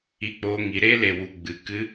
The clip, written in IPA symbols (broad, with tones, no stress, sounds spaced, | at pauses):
i˧ k͡p oː˧ ŋ i˨ ɾ e˦ l e˨ w u˨ ɡ͡b ɨ˨ k ɨ˧